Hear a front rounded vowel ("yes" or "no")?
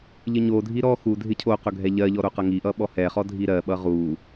no